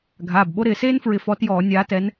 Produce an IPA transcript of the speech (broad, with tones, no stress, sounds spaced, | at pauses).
ɡʱ aː˩˧˩ b ɓ o˦ ɾ ɪː˧˩˧ s eː˦ n f ɹ ɪ˨˦ f ɔ˨˦ t j ɔː˧˩˧ nʲ aː˨˦ t ɛ˨˦ n